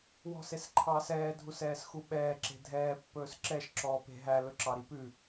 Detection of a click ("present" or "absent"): present